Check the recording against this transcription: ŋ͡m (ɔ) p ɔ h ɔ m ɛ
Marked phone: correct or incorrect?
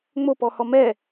incorrect